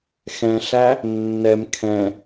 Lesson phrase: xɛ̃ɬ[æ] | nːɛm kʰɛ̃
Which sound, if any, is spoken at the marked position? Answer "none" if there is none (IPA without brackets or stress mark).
æ